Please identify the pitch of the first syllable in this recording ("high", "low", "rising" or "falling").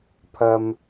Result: low